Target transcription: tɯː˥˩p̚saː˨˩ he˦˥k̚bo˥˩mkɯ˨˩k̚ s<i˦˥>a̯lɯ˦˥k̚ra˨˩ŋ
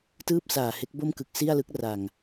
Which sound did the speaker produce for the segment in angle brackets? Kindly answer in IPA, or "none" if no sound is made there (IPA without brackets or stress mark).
i˥˩